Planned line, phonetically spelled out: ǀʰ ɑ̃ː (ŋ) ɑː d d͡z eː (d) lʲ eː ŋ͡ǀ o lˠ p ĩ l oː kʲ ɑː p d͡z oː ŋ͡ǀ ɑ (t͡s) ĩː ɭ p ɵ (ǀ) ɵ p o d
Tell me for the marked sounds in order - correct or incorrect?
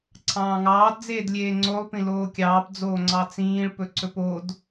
correct, correct, correct, correct

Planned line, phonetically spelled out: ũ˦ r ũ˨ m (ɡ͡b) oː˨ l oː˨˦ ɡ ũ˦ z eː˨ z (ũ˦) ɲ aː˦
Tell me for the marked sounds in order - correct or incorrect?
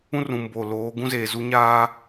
incorrect: b, incorrect: u˦

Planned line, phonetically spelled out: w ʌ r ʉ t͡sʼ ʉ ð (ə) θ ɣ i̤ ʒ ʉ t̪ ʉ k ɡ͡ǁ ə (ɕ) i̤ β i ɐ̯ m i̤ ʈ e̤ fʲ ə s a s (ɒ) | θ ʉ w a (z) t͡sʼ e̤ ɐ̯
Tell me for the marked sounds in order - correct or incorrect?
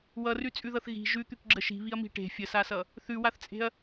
incorrect: ʌ, incorrect: ʃ, incorrect: ʌ, incorrect: θ

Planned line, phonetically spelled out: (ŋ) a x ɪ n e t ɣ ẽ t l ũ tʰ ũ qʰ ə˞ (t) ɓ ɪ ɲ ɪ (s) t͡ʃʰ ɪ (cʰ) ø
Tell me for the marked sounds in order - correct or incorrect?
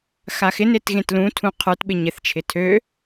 incorrect: x, correct, incorrect: θ, incorrect: tʰ

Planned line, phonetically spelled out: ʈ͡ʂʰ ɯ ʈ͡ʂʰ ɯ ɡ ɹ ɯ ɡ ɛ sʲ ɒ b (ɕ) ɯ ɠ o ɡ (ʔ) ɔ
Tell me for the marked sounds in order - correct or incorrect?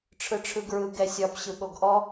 correct, correct

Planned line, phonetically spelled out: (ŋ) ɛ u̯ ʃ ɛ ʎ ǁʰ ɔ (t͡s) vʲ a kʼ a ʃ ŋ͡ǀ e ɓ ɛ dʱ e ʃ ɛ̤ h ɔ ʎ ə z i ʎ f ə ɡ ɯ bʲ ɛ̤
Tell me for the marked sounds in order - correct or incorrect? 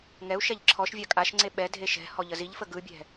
correct, incorrect: ʃ

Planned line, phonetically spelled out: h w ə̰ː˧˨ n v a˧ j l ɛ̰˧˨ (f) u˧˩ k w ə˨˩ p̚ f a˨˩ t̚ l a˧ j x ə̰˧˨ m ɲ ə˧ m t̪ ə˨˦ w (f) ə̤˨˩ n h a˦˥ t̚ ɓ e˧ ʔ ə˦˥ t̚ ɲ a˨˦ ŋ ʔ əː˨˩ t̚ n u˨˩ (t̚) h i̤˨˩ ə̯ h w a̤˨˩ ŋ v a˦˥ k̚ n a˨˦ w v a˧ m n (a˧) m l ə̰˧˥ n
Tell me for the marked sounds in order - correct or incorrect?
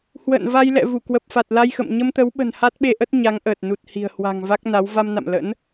incorrect: v, incorrect: ɓ, correct, incorrect: a̰˧˨

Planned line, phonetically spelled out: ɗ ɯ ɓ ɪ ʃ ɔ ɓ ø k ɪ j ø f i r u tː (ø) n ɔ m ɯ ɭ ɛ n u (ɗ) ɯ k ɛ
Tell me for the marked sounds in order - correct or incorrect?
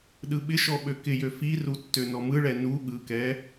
correct, incorrect: ɠ

